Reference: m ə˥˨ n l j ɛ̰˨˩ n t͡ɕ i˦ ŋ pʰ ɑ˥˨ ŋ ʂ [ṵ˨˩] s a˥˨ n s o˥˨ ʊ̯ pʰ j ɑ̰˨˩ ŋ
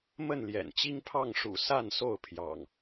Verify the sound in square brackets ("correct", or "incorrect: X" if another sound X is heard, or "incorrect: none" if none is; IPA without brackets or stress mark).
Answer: correct